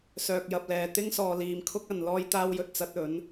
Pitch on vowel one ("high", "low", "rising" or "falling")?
low